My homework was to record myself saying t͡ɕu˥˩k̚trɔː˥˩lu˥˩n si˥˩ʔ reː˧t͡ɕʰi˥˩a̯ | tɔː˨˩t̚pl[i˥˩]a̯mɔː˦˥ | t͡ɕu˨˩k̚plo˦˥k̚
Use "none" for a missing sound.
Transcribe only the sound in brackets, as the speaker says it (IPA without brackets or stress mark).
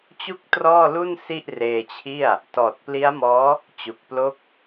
i˦˥